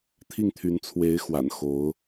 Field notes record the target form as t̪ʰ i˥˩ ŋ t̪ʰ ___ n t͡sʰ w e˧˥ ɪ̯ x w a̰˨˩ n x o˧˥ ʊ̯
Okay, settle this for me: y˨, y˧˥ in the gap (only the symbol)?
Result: y˧˥